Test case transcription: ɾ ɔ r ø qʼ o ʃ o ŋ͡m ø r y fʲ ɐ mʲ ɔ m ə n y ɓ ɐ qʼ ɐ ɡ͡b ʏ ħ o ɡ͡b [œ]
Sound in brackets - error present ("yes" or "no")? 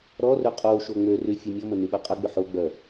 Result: no